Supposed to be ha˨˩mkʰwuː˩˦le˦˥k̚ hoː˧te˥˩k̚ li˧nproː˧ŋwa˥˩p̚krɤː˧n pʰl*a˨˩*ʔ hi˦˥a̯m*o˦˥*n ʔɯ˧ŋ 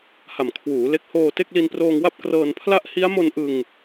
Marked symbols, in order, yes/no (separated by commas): no, no